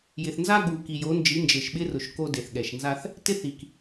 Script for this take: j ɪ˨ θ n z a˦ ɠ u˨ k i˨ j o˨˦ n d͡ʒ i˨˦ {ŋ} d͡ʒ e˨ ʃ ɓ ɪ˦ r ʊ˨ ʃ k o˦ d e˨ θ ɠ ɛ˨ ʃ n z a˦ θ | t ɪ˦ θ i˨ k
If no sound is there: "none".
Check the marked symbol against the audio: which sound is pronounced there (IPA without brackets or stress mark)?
n